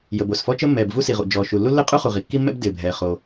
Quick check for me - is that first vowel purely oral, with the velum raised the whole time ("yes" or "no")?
yes